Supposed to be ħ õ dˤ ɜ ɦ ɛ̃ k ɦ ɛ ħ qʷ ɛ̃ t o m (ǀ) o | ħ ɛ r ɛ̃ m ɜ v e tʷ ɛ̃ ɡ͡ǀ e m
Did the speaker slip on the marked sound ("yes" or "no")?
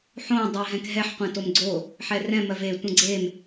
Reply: yes